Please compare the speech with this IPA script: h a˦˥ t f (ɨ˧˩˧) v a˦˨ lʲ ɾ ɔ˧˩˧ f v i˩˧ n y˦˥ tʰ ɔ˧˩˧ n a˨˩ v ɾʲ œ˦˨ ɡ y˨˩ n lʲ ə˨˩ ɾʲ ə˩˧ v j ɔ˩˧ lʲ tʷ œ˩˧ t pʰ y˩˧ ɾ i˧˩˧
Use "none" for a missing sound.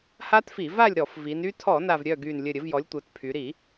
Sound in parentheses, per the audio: i˧˩˧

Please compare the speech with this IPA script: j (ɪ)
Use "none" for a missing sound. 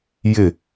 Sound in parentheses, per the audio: ɪ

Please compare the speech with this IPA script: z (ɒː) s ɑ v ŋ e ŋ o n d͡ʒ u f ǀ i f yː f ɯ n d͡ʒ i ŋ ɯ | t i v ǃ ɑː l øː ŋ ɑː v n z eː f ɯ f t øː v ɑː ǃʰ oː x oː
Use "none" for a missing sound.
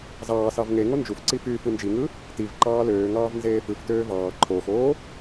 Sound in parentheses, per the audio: ɑː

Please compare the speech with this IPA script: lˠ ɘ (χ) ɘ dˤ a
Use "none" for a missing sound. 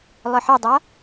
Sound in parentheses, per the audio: ħ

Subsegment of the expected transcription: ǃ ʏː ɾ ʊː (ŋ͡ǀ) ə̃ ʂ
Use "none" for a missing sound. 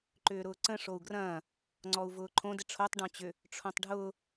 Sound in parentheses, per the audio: ǀ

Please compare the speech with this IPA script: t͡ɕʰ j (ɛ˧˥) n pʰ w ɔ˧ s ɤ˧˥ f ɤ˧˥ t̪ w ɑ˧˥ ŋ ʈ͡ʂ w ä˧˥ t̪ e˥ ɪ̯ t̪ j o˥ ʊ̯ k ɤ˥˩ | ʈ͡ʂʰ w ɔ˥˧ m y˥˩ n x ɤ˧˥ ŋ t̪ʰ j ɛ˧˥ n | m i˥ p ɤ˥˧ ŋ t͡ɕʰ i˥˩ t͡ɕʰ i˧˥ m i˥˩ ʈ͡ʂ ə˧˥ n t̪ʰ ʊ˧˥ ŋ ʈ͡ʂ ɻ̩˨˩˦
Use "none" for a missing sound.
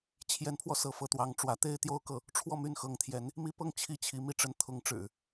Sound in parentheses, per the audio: ɛ˧˥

